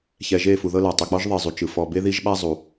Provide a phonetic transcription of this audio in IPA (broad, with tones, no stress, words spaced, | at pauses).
çɛ˨ʒe˦˨ fu˨ðɤ˦la˨ tˤe˨k͡pɔ˦ʒ ðˤe˨ zˤu˨ t͡ʃɯ˨ fɔ˨ be˦ði˦ʒɓa˦ zˤu˨